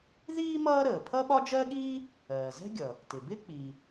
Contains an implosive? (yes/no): yes